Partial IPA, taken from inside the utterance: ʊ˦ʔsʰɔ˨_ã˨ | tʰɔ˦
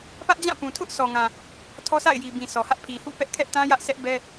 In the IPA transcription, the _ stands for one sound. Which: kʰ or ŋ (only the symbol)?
ŋ